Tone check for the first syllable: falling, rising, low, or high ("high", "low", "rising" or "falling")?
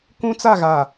high